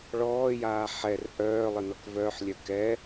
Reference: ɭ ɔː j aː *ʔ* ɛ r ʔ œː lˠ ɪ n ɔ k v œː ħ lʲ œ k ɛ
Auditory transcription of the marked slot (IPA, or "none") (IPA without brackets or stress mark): ħ